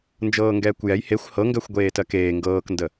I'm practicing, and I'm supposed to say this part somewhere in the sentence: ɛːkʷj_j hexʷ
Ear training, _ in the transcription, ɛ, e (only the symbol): ɛ